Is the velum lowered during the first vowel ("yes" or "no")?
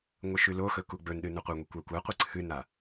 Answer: no